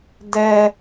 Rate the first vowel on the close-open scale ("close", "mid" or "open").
mid